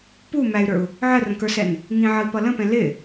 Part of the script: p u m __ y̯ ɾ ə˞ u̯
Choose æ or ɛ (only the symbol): æ